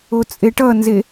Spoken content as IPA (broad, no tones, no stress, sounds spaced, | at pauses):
o t͡sʼ e ʈ ʌ n z e